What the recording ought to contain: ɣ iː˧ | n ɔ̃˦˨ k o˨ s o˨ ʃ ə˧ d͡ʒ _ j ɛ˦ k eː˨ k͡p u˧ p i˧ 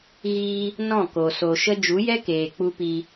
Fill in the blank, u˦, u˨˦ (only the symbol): u˨˦